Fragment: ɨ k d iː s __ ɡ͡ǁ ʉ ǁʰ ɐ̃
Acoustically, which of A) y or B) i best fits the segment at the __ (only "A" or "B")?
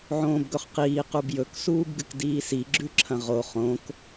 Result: B